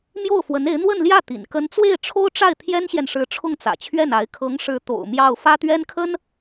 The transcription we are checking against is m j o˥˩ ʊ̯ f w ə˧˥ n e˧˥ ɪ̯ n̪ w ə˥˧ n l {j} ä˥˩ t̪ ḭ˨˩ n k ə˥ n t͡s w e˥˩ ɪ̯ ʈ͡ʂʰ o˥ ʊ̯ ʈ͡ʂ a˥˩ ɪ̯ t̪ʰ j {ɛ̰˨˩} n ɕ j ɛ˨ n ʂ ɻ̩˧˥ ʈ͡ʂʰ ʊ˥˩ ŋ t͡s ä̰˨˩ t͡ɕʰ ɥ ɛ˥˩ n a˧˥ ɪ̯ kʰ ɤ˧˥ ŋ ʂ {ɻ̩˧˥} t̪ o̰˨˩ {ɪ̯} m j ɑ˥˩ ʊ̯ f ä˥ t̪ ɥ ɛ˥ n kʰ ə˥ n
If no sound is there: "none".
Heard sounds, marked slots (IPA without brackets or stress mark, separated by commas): j, ɛ˥, ɻ̩˧˥, ʊ̯